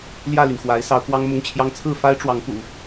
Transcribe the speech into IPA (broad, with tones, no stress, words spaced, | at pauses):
ljä˥˩ly˩nxwa˧˥ɪ̯ sɑ˧˥ʊ̯kwɑ˥ŋmʊ˥˩ŋt͡ɕʰjɑ˥ŋ t͡sʰɹ̩˥˩fa˥ɪ̯ʈ͡ʂwɑ˧˥ŋ pṵ˨˩˦